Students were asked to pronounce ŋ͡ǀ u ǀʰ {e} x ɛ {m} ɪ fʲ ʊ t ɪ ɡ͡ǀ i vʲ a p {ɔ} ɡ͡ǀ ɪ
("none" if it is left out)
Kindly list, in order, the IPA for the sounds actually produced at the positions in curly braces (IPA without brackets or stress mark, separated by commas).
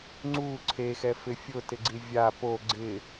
e, f, o